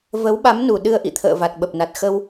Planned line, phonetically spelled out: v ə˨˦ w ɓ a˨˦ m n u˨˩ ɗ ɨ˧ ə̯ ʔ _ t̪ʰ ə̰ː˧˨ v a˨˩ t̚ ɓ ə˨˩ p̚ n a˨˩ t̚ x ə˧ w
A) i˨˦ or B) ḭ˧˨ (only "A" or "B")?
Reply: B